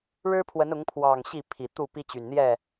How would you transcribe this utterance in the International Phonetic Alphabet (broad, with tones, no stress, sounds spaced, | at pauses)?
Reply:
ɻ ɻ̩˦ pʰ w ə˨˦ n ʊ˨˦ ŋ pʰ w ɑ˨˩ ŋ ɕ i˥˨ pʰ i˨˩ t̪ u˥˨ p i˦ t͡ɕ y˨˩ n n̪ j ɛ˥˨